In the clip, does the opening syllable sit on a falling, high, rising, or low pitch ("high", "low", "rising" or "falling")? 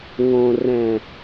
low